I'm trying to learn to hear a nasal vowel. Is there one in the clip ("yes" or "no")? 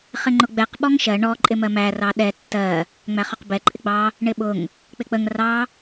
no